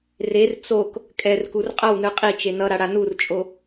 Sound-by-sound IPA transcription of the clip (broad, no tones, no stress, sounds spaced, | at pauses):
r e r t͡s o k | kʼ ɛ r k u r qʼ ʌ w n ɯ qʼ i t͡ʃ e n ʌ ɾ a ɽ a n u r t͡ʃʼ o